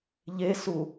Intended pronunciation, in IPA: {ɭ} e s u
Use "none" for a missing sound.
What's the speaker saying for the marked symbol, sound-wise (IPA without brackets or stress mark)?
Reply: ʎ